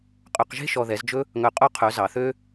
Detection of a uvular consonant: present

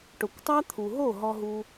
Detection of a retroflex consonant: present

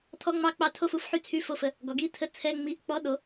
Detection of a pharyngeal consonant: present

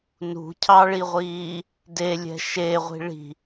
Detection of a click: absent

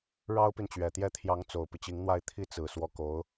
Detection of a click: absent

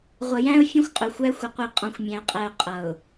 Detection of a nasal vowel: present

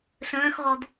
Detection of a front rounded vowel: present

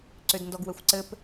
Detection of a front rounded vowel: present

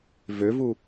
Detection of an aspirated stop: absent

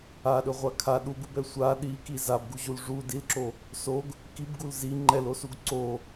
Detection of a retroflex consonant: present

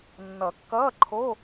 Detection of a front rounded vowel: absent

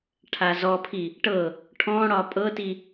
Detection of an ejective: present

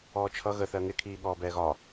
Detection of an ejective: absent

